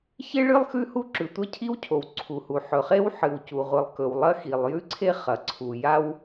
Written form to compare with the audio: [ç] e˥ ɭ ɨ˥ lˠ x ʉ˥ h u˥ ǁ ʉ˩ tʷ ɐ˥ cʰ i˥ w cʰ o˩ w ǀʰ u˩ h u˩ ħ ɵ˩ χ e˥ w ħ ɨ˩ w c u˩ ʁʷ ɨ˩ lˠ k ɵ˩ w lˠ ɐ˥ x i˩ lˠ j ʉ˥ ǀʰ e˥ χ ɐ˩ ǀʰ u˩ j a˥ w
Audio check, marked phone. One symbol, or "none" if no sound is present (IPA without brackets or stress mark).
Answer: ç